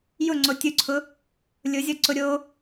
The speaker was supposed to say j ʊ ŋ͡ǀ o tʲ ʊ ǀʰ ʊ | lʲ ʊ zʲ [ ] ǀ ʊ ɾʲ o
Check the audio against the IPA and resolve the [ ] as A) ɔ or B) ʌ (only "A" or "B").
A